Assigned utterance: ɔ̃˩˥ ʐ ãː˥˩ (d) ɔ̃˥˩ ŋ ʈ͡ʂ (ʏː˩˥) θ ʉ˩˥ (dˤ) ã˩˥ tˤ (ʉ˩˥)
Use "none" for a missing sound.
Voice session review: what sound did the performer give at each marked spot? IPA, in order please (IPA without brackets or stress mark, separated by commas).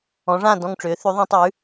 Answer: d, ʏː˩˥, ðˤ, ʉ˩˥